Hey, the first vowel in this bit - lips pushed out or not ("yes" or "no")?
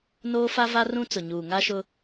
yes